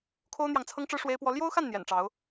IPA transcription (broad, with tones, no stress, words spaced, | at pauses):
kʰo˦ʊ̯n̪jɑ˨ŋt͡sʰɤ˦ŋʈ͡ʂɻ̩˦ ʂwe˦ɪ̯pwɔ˦ ljo˦ʊ̯xa˥˨n n̪jɛ̰˨˩nʈ͡ʂɑ˨˦ʊ̯